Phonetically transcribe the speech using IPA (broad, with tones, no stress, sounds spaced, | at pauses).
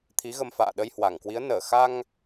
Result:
t̪ʰ i˨˦ ɣ ə˧ m f a̰ː˧˨ ɗ ə˧ j h w a˧˩ ŋ k w i˨˦ ə̯ n əː˧˩ x a˧ ŋ